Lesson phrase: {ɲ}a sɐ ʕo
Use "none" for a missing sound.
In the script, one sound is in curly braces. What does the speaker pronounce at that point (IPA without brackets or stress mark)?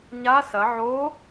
ɲ